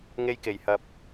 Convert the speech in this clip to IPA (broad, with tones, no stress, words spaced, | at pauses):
ŋe˧jke˨˩jhɐ˨p̚